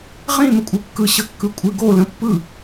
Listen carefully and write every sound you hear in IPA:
ʁ ĩ m ə kʷʼ ɨ kː ɯ ɕ ə kː ɯ kʷʼ ɨ ɡ o l ə̃ pː ɯ

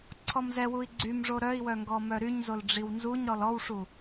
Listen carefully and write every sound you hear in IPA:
ǀʰ ɔ m z ɛ w u i̯ ɡ͡ǀ y m ʐ o ɾ œ i̯ w œ ŋ ɡ ɔ m œ ɾ y ɲ z o l ɖ͡ʐ i w n z u ɲ ɾ ɔ l ɔ w ʂ u

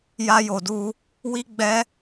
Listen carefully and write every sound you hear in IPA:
j a˦ j o˧ d u˦ | w i˦ ɡ͡b ɛ˦

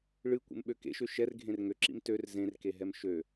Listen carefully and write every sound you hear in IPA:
ɭ ɨ kʷ ḛ m ɓ ø k ḛ ʃ ø ʃ ɛ r ɡʱ ẽ r ŋ ø ǁ ḭ m t ø r z ẽ r k e ɦ ɛ m ʃ ø

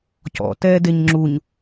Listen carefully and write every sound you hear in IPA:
c ɔ̰ t ɛː d e ɲ ŋ͡ǁ u ɲ

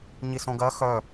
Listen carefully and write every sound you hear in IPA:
ɲ i s õ ɡ ɜ x œ

